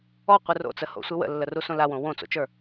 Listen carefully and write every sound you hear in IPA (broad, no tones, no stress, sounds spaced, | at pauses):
ɔ qʷ ɨ r o̰ t͡s ə h o̰ sʷ ɨ w ə̰ lː ə r u s õ l a w õ w õ t͡s o̰ t͡ʃ ə˞